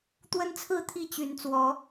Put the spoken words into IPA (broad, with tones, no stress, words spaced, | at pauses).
t̪wə˦nt͡sʰɹ̩˥˨ t̪ʰi˥˨ t͡ɕy˨˦nt͡swɔ˨˦